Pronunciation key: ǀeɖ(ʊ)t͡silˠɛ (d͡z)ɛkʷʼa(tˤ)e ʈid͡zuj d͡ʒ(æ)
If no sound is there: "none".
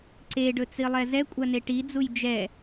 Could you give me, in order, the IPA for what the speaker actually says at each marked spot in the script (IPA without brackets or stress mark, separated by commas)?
ɵ, z, n, ɛ